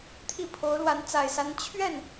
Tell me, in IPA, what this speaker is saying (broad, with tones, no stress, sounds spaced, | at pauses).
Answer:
t̪ʰ i˥˩ pʰ o˧˥ ʊ̯ l w a˧˥ n t͡s a˨˩ ɪ̯ s a˧˥ n t͡ɕʰ ɥ ɛ˥˩ n